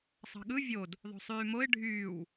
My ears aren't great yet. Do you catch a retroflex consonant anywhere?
yes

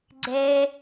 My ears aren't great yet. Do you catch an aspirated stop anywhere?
no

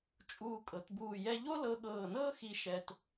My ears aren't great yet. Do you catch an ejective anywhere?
yes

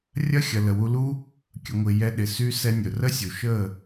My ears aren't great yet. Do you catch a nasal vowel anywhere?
no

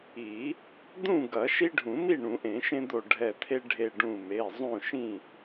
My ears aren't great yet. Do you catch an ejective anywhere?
no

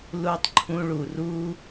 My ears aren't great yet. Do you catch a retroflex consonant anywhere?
yes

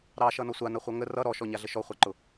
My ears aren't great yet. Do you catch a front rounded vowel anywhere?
no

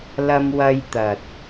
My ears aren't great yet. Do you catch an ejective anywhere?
no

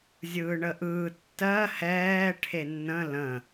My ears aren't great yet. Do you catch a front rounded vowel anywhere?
no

